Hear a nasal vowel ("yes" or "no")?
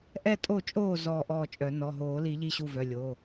no